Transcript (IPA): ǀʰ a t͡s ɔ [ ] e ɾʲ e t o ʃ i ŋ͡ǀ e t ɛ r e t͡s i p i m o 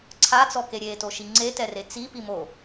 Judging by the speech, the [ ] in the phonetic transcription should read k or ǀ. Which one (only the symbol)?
k